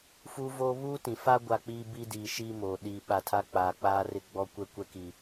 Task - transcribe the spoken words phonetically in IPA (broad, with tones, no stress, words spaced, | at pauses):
fuː˦voː˦ βuː˦tĩ˨fa˦ ɡʷa˦k͡piː˦ biː˦diː˨ʃiː˦ moː˨ ɗiː˨ɓa˨tʰa˦ k͡paː˨k͡paː˦rɪ˦ ɡ͡bɔ˦kʷɛ˦ kʷɛ˦ki˨